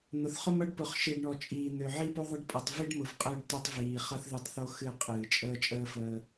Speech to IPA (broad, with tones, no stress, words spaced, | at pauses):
n̪ʊ˨θχʊ˦mʌ˦ɖ pʊ˨χʃi˨ɖ ɳɔ˨t͡ʃʼiː˨ n̪ø˨ʕi˦po˦ðˤə˦ɖ pʼʌ˨tˤvi˦ɖmʊ˨v qʼəː˦ɖtø˦tˤviː˨ χʌ˦θðɨ˦˨tˤθo˦ xɨ˦˨qʼɨː˨ t͡ʃʼəː˦t͡ʃʼəː˦fəː˦